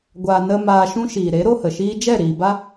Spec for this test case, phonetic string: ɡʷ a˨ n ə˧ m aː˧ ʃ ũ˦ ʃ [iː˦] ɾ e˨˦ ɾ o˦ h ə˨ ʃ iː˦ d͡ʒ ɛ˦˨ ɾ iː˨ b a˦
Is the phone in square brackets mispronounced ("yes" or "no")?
yes